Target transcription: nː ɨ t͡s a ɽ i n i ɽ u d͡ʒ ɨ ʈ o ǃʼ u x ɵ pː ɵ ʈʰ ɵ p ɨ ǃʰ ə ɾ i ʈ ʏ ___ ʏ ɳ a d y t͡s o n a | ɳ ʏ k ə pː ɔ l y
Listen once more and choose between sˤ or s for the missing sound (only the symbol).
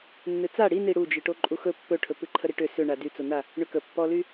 s